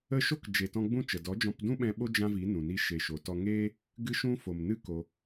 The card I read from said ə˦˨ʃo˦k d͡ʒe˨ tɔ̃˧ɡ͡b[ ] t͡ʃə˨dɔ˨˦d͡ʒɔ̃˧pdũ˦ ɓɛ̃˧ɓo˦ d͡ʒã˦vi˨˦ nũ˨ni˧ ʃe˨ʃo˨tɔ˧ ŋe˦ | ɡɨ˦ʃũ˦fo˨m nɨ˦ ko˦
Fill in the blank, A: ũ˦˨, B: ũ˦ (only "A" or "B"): A